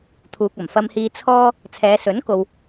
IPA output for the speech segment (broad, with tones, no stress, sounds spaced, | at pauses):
t̪ʰ uː˨ k̚ ɐ˨˩ m f ɐ˧ m h iː˧ t͡sʰ ɔː˥ | t͡sʰ ɛː˨˧ s ɵ˨˥ n k o˨ w